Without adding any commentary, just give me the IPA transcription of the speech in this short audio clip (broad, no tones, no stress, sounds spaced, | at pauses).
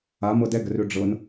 a m ɤ d ɛ ɡ ə r ø ɖ͡ʐ ɤ n